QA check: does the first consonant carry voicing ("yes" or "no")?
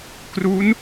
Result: no